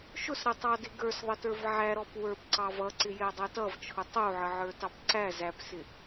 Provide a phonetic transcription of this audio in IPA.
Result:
ʃ ʊ s ɾ ɪ tˤ ɑ d ɪ ɡ ə˞ s ðˤ ə t ə˞ v ʕ æ ɾ ɔ p w ə˞ p ǀ ɑ v ʌ ǀ ɪ j ɛ dˤ ɛ t ʌ v t͡ʃʰ ʊ tˤ u ʕ ə ʕ ə˞ t ɑ p ǀ æ z æ p s ɪ

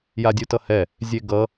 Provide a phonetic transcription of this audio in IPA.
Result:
j a dʲ u t ʌ h ɛ | zʲ e ɡ ʌ

